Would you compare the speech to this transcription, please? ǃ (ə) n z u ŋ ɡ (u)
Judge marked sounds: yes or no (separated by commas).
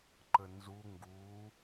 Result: yes, yes